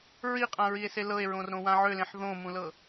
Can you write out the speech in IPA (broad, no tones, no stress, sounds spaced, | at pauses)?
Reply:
ɹ i qʼ ã ɹ i e̯ s e l ɤ e̯ ɹ õ r ɾ õ w ã ʕ ø l ẽ ħ ð õ m ũ l ɤ